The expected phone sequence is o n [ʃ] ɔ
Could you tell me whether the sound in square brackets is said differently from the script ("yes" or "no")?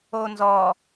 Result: yes